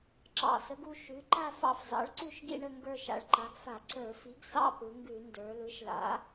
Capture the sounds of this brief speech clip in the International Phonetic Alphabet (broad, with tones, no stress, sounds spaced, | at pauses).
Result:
ǁ ɑ̰˧˩˧ s ə˩˥ ɡ u˥˧ ʃ ʉ˩˥ ǃ a˥˧ f ɑ̰˥˧ f z ɑ̰˩˥ ɭ ǀ ʉ˥˧ ʃ ɡ ḭ˥˧ ɳ ə˥˧ ŋ ɡ ə˞˥˧ ʃ a̰˩˧ ɭ ǃ a˩˥ ɡ f a˧˩˧ ǀ ə˞˧˩˧ f i˩˥ ɡ s ɑ̰˥˧ p ɯ˩˧ ŋ ɡ ʉ˧˩˧ n d ə˞˩˧ l ɯ˩˥ ʃ l a̰˩˥